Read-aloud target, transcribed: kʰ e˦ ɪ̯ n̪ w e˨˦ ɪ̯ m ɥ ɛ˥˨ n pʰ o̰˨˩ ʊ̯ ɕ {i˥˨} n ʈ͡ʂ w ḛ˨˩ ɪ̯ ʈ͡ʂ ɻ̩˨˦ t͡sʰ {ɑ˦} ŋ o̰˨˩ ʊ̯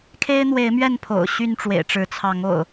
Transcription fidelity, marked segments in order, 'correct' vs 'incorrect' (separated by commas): incorrect, incorrect